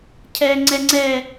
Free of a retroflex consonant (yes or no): yes